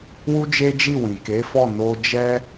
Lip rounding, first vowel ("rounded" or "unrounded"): rounded